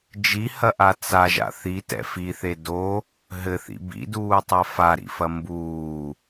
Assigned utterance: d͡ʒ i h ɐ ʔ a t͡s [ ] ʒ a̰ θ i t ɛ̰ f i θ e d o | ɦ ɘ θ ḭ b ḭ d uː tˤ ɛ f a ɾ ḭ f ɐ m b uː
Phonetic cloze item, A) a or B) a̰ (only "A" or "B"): A